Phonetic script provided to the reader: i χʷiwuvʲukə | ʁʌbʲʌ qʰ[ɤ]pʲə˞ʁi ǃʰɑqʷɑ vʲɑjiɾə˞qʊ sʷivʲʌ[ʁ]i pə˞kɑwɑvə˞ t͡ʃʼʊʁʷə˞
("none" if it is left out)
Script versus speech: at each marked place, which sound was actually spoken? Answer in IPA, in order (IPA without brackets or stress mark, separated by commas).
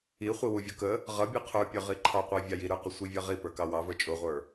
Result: ə˞, ʁ